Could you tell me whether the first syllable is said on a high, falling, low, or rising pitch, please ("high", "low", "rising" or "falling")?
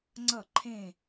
falling